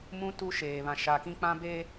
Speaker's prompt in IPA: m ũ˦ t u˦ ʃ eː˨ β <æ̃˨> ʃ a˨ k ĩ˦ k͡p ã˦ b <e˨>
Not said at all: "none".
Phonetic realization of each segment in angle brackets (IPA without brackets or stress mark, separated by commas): ã˨, e˦